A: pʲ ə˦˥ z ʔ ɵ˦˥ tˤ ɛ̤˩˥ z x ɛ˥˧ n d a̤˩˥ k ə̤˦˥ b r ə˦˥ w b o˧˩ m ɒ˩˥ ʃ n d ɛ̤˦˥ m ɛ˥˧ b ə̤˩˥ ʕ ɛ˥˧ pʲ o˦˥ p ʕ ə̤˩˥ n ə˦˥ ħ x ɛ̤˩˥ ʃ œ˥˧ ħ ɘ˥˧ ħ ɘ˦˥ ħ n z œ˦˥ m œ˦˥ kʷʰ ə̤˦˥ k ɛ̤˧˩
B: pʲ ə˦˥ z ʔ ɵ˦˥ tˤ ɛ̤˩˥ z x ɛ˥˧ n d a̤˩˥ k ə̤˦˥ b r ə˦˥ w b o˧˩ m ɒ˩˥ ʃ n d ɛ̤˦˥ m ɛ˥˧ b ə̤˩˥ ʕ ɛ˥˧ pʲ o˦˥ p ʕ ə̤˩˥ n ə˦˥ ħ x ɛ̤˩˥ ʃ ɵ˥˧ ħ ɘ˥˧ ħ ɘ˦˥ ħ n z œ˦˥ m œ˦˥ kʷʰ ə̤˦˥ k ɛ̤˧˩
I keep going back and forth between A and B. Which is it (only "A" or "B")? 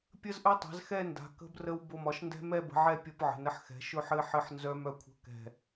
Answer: B